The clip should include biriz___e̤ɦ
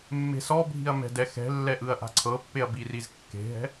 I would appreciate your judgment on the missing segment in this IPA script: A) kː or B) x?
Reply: A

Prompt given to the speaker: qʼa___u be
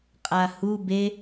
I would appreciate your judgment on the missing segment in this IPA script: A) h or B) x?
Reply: A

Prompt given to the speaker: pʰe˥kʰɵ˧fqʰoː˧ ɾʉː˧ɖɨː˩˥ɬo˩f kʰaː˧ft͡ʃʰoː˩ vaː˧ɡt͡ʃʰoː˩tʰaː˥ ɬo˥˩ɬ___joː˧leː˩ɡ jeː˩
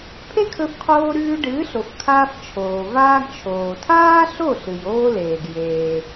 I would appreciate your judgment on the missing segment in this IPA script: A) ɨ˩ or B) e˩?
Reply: A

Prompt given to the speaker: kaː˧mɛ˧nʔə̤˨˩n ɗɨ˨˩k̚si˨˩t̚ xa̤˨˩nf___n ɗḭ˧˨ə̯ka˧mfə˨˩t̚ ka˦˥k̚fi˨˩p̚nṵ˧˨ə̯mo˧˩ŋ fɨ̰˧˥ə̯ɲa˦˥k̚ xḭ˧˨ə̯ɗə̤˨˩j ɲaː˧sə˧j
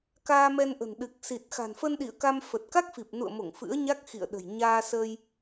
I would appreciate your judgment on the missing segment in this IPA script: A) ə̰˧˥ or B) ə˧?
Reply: B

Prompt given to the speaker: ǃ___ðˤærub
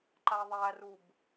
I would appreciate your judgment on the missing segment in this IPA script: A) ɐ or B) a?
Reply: B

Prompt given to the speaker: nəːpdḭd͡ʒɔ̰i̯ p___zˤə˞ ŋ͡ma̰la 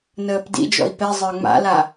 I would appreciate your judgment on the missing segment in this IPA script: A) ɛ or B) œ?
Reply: A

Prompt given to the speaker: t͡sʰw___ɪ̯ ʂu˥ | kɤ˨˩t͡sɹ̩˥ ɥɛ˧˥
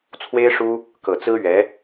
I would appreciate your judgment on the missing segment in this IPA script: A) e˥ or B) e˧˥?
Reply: A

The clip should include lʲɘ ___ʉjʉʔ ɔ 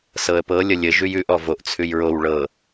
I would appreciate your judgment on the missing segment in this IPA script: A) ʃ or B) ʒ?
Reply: B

